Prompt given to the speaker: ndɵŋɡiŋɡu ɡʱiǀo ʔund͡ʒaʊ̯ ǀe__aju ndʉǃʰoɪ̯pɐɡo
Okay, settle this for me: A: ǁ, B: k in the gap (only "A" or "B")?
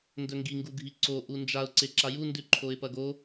A